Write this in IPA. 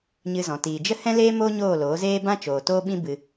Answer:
ɲ ɨ˧ z ɔ̃˨ t iː˨ d͡ʒ ə˦ h ɛ̃˦ l eː˦ m oː˦ ɲ oː˦˨ l oː˨˦ z eː˦ b ã˦ t͡ʃ oː˨ t oː˦ ɓ ĩ˦ b ɨ˧

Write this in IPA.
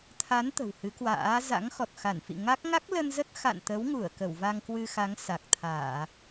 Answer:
t̪ʰ a˨˦ n t̪ ə̤˨˩ w h ɨ˨˦ k w a̰ː˧˥ z a̰˧˥ ŋ x ɔ˨˩ t̚ x a˧˩ n f ḭ˧˨ ŋ a˦˥ k̚ ŋ a˦˥ k̚ l ə˧ n z ə˦˥ t̚ x a̰˧˨ n t̪ ə˨˦ w ŋ u˧˩ ə̯ k ə˧˩ w v a˧ ŋ k w ɨ˧ x a˨˦ ŋ s a˨˩ k̚ t̪ʰ aː˧˩˨

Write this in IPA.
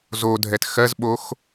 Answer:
z o dʱ ɛ t x ɜ z ɓ o x

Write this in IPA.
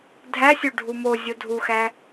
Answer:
dʱ æ sʲ o ɖʱ u m o zʲ o dʱ u x æ

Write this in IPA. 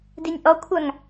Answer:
d i nʲ ʔ ɔ kʷʰ a ŋ

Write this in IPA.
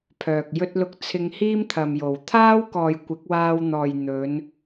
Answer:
pʰ œː˨ k̚ j ɵ˥ t̚ l ʊ˥ k̚ t͡sʰ ɪ˧ ŋ h iː˥ m t̪ʰ ɐ˨ m j o˨˩ w t̪ʰ aː˥ w k ɔː˨ j kʷ ɪ˨˥ k̚ w aː˧ w n̪ ɔː˨ j n̪ ɵ˨˧ n

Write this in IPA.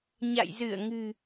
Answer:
ɲ a̰˧˨ j z ɨ˧˩ ə̯ ŋ ɨ̤˨˩

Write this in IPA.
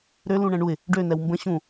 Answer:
ɾ ø l ũ ɳ ɛ̃ ɳ u ɪ̯ | ɖ ø n ɛ w m b ə̃ ɕ ũ

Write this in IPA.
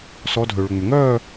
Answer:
s ɔ˧˥ dʱ ø˨ ɭ ʏ˨ ŋ͡m ʏ˨ ŋ œː˥˧

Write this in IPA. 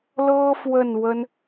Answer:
l ɤ˥ f w ə˥˩ n w ə˥ n

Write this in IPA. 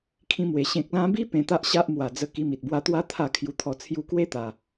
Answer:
kʰ ĩ˧ m w e˨˩ ɕ ẽ˨ k̚ l ã˧ b i˦ p ẽ˧ t̪ a˦ ʔ ɕ a˦ ʔ m w a˨˩ d͡z ə˧ k i˧ m i˨ t̚ b w a˧ t̪ w a˦ t̪ʰ a˥˧ kʰ j u˧ t̪ʰ ɔ˧ t͡sʰ j u˧ k w e˦ t̪ a˨˩

